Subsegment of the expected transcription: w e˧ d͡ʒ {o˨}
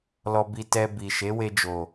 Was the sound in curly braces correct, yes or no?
yes